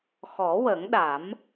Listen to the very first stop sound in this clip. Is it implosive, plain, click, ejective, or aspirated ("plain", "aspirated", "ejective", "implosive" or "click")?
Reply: implosive